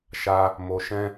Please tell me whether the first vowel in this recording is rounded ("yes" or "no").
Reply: no